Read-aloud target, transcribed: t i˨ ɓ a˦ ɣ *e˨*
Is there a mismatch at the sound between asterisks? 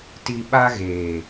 yes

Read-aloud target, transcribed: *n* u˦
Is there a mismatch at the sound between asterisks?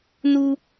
no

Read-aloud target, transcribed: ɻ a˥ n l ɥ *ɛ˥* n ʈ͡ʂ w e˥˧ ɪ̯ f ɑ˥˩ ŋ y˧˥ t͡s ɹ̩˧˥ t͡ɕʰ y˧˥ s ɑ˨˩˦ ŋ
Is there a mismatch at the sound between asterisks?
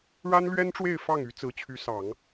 no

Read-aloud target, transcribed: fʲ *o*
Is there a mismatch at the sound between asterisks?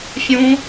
yes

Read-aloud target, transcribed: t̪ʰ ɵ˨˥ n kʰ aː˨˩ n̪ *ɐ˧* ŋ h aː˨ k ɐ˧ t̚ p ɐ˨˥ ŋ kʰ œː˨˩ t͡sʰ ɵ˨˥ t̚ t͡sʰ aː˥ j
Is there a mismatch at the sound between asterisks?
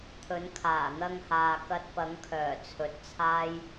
no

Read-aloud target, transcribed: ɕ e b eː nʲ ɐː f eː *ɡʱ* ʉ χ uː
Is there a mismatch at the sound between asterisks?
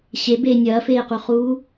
yes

